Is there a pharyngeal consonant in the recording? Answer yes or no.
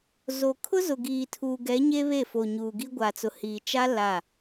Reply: no